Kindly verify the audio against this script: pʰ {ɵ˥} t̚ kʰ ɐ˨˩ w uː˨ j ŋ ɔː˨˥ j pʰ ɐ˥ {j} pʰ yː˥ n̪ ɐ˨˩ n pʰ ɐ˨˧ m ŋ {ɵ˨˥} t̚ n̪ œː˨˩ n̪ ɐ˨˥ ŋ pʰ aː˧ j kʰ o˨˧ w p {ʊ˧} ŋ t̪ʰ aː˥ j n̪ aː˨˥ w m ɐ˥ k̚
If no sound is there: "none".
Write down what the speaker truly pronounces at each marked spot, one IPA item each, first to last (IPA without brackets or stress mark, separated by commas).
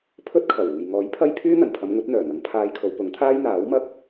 ɵ˥, j, ɵ˨˥, ʊ˨˥